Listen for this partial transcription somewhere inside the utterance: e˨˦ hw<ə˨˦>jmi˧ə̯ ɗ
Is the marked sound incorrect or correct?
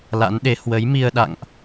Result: correct